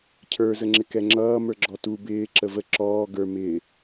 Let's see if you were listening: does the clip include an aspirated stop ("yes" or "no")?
yes